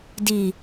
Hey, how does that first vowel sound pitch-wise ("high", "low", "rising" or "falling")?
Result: low